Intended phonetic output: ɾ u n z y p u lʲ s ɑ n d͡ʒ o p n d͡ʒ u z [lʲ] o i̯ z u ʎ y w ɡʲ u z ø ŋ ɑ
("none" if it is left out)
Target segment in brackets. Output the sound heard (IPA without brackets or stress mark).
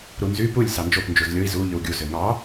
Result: lʲ